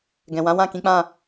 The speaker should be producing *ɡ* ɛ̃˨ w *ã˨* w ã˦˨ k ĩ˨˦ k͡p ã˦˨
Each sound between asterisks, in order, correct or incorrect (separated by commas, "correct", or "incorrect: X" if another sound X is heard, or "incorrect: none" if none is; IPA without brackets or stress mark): correct, incorrect: ã˨˦